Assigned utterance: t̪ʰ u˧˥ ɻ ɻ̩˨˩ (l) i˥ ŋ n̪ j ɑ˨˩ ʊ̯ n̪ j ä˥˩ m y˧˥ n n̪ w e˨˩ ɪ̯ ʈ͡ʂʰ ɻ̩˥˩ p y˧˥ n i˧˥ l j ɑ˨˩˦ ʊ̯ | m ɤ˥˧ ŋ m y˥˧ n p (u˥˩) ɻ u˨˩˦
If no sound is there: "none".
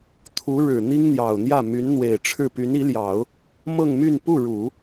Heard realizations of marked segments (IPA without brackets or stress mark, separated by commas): n̪, u˥˩